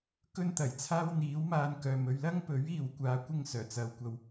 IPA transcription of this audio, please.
k ɵ˧ n t̪ ɐ˨˩ j t͡sʰ aː˧ w n̪ iː˨˥ w m aː˧ n k œː˨ m ɵ˧ ɥ l ɐ˥ ŋ p ɵ˨˥ ɥ iː˨ w kʷ aː˨˧ kʷ ɪ˧ ŋ s œː˨˩ t͡s ɐ˨ w kʷ ɐ˧ w

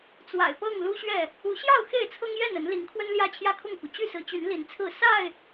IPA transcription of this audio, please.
t͡s w a̰˨˩ ɪ̯ p ɤ˥˨ ŋ l u˦ ɕ ɥ ɛ˥˨ | u˨˦ ɕ j ɑ˥˨ ʊ̯ x e˥˨ ɪ̯ t͡sʰ ɤ˦ ŋ j ɛ˥˨ n ə˨˦ n l i˨˦ ŋ kʰ w ə˦ n l j ä˦ t͡ɕʰ j ä˥˨ kʰ ʊ˥˨ ŋ k u˩ t͡ɕ y˥˨ s ɹ̩˨˦ t͡ɕ y˨˦ n l i˨˦ n t͡sʰ ɹ̩˥˨ s a˥˨ ɪ̯

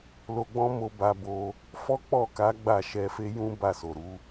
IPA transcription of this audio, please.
l o˧ ɡ͡b ɔ̃˦ m o˧ b a˧ b o˧ | f ɔ˦ k͡p ɔ˦˨ k a˨˦ ɡ͡b a˦˨ ʃ ɛ˧ f e˦ j ũ˦ b a˦˨ s o˨ ɾ u˨˦

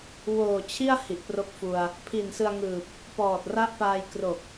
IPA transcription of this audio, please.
w oː˨˩ t͡ɕʰ i˥˩ a̯ h i˨˩ ʔ p r o˦˥ k̚ f u˧ a̯ | pʰ i˨˩ n s ɯ˧ a̯ ŋ ɯː˨˩ p̚ | p ɔː˨˩ t̚ r a˦˥ ʔ p aː˧ j k r o˨˩ k̚

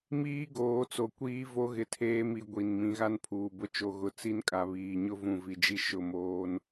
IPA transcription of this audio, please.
m iː˦ ɡ oː˨˦ t͡s o˨ kʷ iː˦ v o˦ ɣ ɪ˨ tʰ eː˦ m i˨ ɡʷ i˨ n m ĩ˨˦ ɣ a˦ n pʰ uː˨ b ʊ˦ t͡ʃ o˨ ɣ ʊ˨ t͡s i˦ n kʼ a˨ β iː˨ ɲ ʊ˦ v ũ˨ v i˨ d͡ʒ i˦ ʃ ʊ˦˨ m oː˦ n

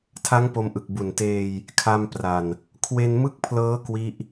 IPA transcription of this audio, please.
tʰ a˦˥ ŋ p o˧ m ʔ ɯ˨˩ k̚ b u˨˩ n t eː˧ j | kʰ a˧ m p r a˨˩ n | kʰ w e˧ n m ɯ˥˩ k̚ pʰ l ɤː˦˥ k w i˦˥ ʔ

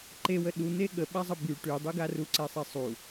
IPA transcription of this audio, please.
ǃ e w ə ɗ u n̪ e ɠ ə ɓ a zˤ ə b y ʈ y dˤ y ɡ a r u ǀ ɛ sˤ ɛ sˤ u

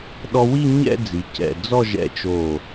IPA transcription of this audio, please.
ɗ ɔ˧ w i˥˧ ɲ ɛ̰˥˧ d͡z i˩˧ c ɛ̰˧˩ d͡z ɔ˥˧ ʒ ɛ̰˧ t͡ʃ o˧˩

